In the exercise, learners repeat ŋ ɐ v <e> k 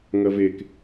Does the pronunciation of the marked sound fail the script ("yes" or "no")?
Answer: no